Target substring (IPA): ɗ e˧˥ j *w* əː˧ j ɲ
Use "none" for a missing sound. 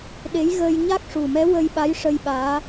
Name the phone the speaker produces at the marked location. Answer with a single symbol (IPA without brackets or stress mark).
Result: ɣ